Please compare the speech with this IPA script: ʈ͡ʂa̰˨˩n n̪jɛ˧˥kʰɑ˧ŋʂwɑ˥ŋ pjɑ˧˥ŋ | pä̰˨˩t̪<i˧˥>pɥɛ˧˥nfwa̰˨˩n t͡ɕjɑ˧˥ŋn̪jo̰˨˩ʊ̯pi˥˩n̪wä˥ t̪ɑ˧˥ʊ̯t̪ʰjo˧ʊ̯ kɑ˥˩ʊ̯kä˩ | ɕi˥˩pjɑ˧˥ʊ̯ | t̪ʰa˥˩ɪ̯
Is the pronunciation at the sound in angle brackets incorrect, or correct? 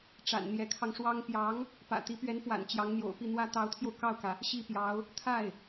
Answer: correct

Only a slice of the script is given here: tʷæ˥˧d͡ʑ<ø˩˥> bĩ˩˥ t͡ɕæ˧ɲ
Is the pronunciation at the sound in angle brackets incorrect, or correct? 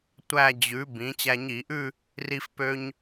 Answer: incorrect: ʉ˩˥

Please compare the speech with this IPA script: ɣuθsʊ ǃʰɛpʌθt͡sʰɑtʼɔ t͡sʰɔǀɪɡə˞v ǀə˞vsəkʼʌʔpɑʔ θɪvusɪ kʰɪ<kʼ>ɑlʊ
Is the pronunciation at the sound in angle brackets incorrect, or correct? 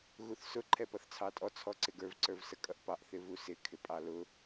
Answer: incorrect: pʼ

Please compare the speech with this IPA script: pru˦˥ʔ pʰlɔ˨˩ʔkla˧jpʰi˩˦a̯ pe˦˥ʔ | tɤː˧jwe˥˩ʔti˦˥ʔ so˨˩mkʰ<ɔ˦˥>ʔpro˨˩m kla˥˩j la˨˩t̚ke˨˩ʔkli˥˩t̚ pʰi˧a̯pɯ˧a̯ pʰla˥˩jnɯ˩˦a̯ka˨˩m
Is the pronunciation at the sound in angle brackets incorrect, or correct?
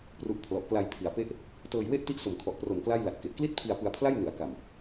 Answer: incorrect: ɔ˨˩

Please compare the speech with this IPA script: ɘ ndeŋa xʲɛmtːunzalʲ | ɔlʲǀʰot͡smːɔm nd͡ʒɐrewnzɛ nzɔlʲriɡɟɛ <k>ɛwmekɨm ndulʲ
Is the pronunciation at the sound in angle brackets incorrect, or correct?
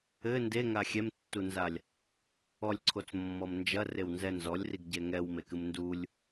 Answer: incorrect: ŋ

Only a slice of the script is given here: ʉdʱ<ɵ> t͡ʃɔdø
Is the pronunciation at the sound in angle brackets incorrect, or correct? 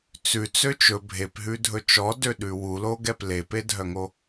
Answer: correct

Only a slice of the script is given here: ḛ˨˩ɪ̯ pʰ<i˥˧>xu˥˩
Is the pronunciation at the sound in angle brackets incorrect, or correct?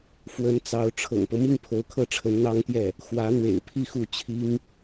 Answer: correct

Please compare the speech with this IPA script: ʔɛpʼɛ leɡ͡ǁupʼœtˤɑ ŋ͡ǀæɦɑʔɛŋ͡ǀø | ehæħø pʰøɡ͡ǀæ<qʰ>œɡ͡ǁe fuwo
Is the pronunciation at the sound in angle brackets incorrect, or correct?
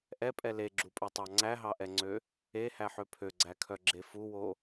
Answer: incorrect: kʰ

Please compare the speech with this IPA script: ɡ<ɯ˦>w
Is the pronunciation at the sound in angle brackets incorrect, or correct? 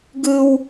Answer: correct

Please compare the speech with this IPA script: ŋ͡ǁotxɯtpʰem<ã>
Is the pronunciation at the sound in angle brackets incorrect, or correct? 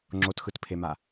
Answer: incorrect: a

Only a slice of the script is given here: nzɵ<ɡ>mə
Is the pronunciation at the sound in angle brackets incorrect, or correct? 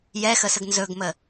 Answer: correct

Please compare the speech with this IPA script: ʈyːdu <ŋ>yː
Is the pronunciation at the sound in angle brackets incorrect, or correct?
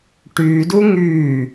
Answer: correct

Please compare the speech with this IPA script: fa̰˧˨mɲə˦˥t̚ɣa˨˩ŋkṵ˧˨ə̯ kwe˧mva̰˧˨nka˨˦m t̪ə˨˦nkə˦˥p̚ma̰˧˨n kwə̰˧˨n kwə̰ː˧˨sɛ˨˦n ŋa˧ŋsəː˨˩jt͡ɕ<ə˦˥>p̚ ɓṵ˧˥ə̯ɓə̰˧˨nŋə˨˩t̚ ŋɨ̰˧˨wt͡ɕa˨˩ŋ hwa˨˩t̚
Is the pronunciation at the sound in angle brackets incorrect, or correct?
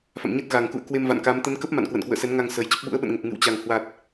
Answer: correct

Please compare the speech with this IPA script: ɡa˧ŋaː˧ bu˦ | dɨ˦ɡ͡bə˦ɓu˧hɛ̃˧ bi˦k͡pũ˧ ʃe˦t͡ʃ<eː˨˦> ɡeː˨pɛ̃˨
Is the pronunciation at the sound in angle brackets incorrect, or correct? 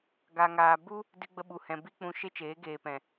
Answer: correct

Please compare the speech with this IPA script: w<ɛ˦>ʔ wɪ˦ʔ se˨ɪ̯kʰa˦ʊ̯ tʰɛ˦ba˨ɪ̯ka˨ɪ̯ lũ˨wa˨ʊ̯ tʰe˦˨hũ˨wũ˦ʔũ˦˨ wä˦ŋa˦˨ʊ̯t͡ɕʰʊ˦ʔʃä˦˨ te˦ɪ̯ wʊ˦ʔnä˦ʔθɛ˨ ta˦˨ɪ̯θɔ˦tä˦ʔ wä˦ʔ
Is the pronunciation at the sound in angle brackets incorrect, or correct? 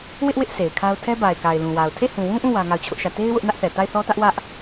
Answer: incorrect: ɪ˦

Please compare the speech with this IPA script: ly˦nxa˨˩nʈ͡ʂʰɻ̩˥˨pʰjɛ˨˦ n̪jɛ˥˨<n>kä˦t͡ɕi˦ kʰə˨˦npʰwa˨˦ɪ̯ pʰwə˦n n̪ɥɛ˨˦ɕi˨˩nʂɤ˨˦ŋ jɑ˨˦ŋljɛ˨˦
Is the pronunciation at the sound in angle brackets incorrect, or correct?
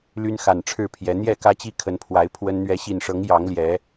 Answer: incorrect: none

